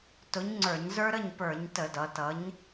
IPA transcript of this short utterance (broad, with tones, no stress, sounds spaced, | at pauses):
t ʊ˨˥ ɲ ŋ͡ǀ ə˞˧˩˧ ɲ z ə˞˦ ɾ ə˥˩ ɲ p ə˞˧˩˧ ɲ t ə˧˩˧ d ʌ˩˧ t ʌ˨˥ ɲ